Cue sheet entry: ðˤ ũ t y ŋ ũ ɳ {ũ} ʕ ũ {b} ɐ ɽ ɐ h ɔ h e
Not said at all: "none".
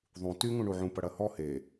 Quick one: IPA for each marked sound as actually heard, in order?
u, p

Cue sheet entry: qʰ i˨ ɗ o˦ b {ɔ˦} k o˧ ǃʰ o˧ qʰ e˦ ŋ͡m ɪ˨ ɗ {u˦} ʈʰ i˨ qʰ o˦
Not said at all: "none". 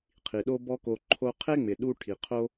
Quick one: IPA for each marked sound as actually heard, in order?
ɔ˦, u˧

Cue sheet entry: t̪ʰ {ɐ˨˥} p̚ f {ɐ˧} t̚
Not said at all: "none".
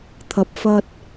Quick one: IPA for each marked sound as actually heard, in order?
ɐ˨, ɐ˧

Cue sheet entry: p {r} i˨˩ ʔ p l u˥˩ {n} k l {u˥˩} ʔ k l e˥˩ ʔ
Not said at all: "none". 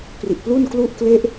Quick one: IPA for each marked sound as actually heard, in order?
r, n, u˥˩

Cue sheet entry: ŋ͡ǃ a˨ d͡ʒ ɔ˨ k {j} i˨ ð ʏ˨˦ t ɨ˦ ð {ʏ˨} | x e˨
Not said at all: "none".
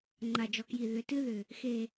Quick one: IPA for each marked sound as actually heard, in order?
j, ʏ˨

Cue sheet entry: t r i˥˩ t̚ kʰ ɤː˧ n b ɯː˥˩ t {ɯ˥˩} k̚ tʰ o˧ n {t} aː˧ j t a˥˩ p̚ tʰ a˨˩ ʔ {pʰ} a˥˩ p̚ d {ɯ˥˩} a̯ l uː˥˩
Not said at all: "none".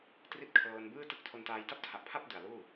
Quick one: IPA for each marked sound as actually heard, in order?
ɯ˥˩, t, pʰ, ɯ˨˩

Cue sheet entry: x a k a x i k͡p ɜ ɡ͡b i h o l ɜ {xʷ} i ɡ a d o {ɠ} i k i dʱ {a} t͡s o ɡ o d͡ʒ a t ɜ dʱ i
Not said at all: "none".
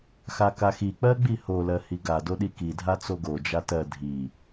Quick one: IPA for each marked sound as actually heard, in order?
h, ɗ, a

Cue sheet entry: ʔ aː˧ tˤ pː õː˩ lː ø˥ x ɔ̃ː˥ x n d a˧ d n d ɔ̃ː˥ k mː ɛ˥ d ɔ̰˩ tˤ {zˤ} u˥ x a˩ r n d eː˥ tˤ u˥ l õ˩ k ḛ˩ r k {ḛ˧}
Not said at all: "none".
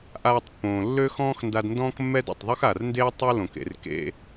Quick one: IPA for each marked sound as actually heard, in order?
ðˤ, ḛ˧

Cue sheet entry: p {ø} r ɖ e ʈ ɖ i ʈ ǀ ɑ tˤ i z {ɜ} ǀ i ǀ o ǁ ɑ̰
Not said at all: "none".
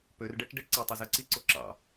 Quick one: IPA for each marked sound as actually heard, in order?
ø, ɜ

